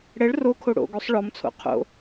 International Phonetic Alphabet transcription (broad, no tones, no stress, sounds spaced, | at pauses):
ɽ ɛ ɭ r o kʰ o ɽ o̰ ɡ o sˤ ɭ ɔ m t͡sʰ o̰ qʰ o̰